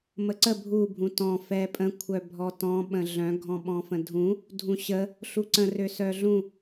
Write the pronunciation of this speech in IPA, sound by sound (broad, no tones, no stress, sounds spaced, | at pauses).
m ə ǀ ə bʱ u bʱ ũ t ɔ̃ f ɛ pʼ ə̃ kʷʰ œ bʱ ɔ t ɔ̃ ɓ ə̃ ɮ œ̃ ɡʱ ɔ̃ ɓ ɔ̃ f ə̃ dʱ ũ | dʱ ũ ɕ ə | ɬ u ǀ ə̃ r ø s œ ɮ ũ